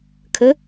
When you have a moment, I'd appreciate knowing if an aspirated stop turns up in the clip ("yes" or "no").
yes